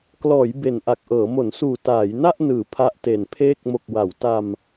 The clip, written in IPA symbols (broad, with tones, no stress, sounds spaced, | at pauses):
k l ɔː˩˦ j b e˨˩ n ʔ a˨˩ k̚ ʔ ɤː˩˦ m o˩˦ n s uː˨˩ t aː˩˦ j n a˥˩ ʔ n ɯː˩˦ pʰ a˦˥ ʔ t e˨˩ n pʰ eː˥˩ k̚ m o˨˩ k̚ w a˩˦ w t a˧ m